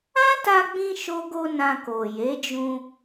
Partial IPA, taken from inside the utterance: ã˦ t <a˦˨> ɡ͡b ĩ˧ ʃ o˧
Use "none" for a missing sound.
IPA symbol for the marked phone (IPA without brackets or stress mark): a˧